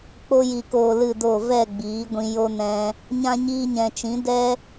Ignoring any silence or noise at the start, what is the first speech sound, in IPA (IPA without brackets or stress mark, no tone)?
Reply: k͡p